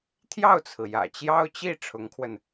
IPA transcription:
t̪ʰjɑ˥˩ʊ̯t͡sʰɹ̩˩ jä̰˨˩t͡ɕjɑ˥ʊ̯t͡ɕi˥˩ ʈ͡ʂʰʊ˧˥ŋkʰwə˧n

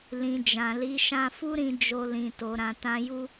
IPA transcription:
lĩ˨ d͡ʒã˨li˨˦ ʃã˧fu˦ɾĩ˧ d͡ʒo˧lĩ˨to˨ ɾã˨tã˧ju˦

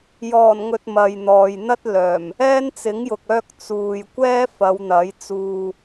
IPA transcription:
jɔː˨˩n ŋɵ˧t̚mɐ˨jn̪ɔː˨j n̪ɐ˥t̚ lœː˨˩m | ɛː˥nt͡sɪ˨˥ŋjʊ˨k̚ œː˥k̚ t͡suː˨j kʷɛː˥fɐ˨˧w n̪ɐ˨˥j t͡suː˧

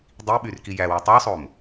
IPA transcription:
dˤi ɓyrki jæwu tˤøsˤom

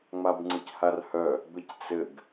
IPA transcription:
ŋ͡mabŋ͡ǀɯcharhœ | bɘct͡sɘɡ

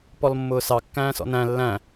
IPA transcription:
pɔlmːʊːsɑ kːæ̃ːsɔ̰næ̃ lːæ̃

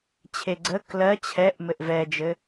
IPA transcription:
t͡ɕʰeɡ͡ǀə klɜ t͡ɕʰɛʔ mɘʔvɛd͡ʒɘ

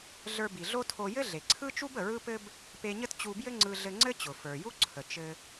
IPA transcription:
ɮə˞˧bi˩ɮo˥tʰo˧ jɘ˥ɮe˩ǀʰɯ˥t͡ʃu˥b ə˩ɹɯ˥pɘ˥b | pe˧ɲə˥t t͡ɕu˧bjɘ˥ŋ͡ǀɯ˧ ɮɘ˧ŋ͡ǀɘ˥t͡ɕʊ˩ fə˞˩ju˥ ǀʰə˩ t͡ʃɘ˧

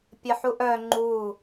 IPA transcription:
pʲəħuʔœ ŋ͡ǃu

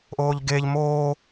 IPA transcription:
ʔoːʎɡeːʎ moː

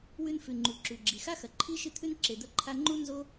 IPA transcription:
wʉ˦n fʉ˩ŋ͡ǃu˩ǁʉ˩ɡ͡ǁi˩ xa˦xɐ˩ ǃʰi˥ ʃɨ˥t̪ʰʉ˥n ǁe˨d̪ɐ˦ǃʰa˦ ŋ͡ǃu˥ nzo˥

